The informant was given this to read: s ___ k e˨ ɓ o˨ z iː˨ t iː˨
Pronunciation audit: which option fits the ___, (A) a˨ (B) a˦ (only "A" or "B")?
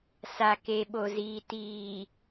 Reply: A